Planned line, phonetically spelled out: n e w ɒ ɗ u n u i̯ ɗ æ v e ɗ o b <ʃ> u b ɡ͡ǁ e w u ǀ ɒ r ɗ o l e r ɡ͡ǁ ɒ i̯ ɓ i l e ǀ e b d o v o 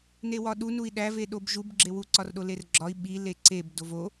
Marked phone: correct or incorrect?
incorrect